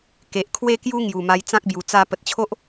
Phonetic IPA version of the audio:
ke˨ʔkʰwe˥˧kju˦ ŋju˨˩ma˧jt͡sã˦k̚bju˨˩ t͡sa˧ pə˨t̚t͡ɕʰo˦ʔ

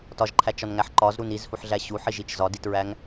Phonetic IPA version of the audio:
tɒʒǃʰæt͡ʃɒnŋæħ ǃɒzɾun izhuħɮæ ɕuħiʒit͡ʃ zɒditɹæŋ

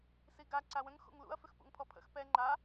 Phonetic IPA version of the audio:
siɡa ǀawə̃ŋ xṵŋlṵɐ̯ fʏxpṵŋpʰɔpʰə̰x pɛ ŋ͡ǃa

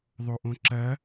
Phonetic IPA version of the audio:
ðˤoʔõǁɐ

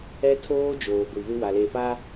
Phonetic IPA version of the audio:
ɛ˦tʰoː˦ d͡ʒoː˨ɡʷi˨βɪ˦ wa˨le˨pa˦

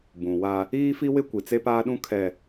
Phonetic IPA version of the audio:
bũ˨wa˦ | iː˦fi˦wɪ˦ kʷi˨t͡se˦paː˦ɗũ˦ kʰɛ˨

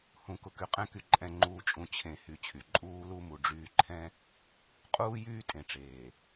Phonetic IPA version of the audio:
hũ˨kʊ˨ ky˨qʼɛ̃˦ky˨ ǃʼɛ̃˨ ŋ͡ǃuː˨t͡ʃʼũ˨ t͡ɕʰẽ˨hy˨ t͡ɕʰy˨ ǃʼuː˦lu˦mu˨ ɖ͡ʐyː˦ ǃʰɛ̃˦ | qʼuː˦jyː˦ tʼẽ˨ʈ͡ʂeː˨

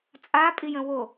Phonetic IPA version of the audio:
t͡sʼapʼijə̃ wo

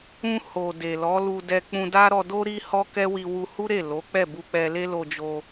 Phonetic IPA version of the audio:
ũ˧ho˨ de˨ lɔ˨˦lu˧ dɛ˧k͡pũ˧da˦ ɾɔ˧do˦ ɾi˦hɔ˦kɛ˦wi˧ wu˧hu˦ɾe˦˨ lo˨˦k͡pɛ˦˨bu˧k͡pɛ˧ le˦lo˧d͡ʒo˧

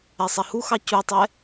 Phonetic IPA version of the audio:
ɛsˤɛhuxɑ cutˤɛ

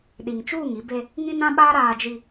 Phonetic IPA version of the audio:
ɗi˨ŋt͡ʃuː˦˨ŋ i˦be˦ | ŋĩ˦nã˦ ɓaː˦ ɾaː˨d͡ʒi˨

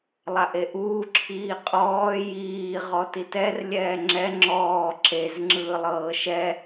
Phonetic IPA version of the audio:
lˠaʔeʔuː ǁʰiːqʼɔː jiː ʁɔtitɛr lʲɛːŋ͡ǁɛ ŋ͡ǁɔː ǁez ŋ͡ǁɯːlˠɤːʃɛ

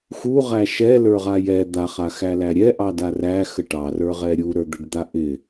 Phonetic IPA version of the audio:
xuʁæ ʃɛlə˞ʁa jɛ d̪aχaxælæ ɾʲɛʔɑda ræxə ʈɑrə˞ʁɛ ɾʲuɾə˞d̪əɖd̪a ʔɪ

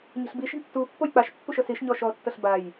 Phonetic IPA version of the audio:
ɲe̤ɬbiʃe̤ɳ tːu pːojk͡paʃpːuʃ ɤsiʃ ɲɔʃɔtːɤɬ baj

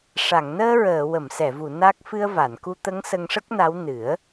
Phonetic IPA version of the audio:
ʂa˨˩˨ŋnəː˧ɹəː˨˩˨ wə˨˩˨msɛ˨˩˨vu˨˩˨ na˦˥k̚ fɨ˧ə̯va˨˩˨nku˧t̪ə˧˥ŋ sə˧ŋʂə˦˥k̚na˧˥w nɨ˨˩˦ə̯

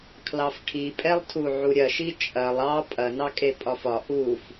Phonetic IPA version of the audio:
kʰlɑfʈʰipʼɛlˠtʰu ʕuɾʲɐʃi t͡ʃʼɐlˠ ɑ pʼɐnɑ kʼepʼɒfɒ ʔuf

